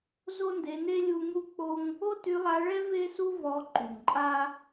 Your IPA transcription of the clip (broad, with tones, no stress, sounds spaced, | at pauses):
z o˦ n d e˧ n e˦ lʲ u˦ ŋ u˦ k͡p o˦ ŋ | o˦ t y˧ lˠ a˧ ɭ ɛ˦ v e˦ s u˦ v ɔ˧ ǃ y˨ ŋ ǃʼ a˦